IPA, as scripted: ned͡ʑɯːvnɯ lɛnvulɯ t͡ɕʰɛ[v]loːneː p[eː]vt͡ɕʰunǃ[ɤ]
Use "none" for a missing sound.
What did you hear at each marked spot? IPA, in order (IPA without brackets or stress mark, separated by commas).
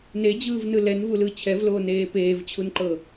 v, eː, ɤ